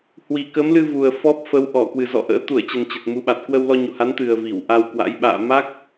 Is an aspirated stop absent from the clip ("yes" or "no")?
yes